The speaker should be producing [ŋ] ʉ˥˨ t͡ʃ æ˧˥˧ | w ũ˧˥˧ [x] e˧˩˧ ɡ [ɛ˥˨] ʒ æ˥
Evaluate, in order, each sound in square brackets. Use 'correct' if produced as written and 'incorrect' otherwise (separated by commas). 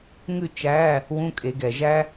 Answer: correct, incorrect, incorrect